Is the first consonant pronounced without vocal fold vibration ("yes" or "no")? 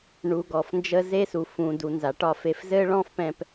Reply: no